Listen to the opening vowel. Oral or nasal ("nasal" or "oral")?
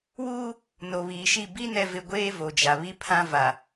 oral